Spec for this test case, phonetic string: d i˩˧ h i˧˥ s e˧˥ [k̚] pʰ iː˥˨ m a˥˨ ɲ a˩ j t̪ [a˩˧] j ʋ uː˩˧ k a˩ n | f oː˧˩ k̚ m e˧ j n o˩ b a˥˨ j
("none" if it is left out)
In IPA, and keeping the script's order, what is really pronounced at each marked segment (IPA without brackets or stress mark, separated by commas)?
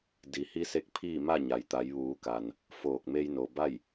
k̚, a˩˧